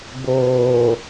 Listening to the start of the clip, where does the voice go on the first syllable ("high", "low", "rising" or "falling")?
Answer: low